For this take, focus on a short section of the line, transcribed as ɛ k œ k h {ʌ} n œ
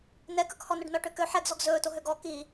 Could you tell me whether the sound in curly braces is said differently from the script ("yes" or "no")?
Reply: yes